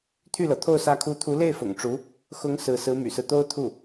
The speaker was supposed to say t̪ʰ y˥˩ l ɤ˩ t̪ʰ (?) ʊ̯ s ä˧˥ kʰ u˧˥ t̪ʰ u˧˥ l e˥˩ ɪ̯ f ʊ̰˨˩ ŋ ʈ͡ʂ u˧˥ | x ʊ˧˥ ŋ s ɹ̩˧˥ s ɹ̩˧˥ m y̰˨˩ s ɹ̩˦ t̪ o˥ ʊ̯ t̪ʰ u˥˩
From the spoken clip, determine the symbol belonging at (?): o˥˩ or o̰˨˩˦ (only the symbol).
o˥˩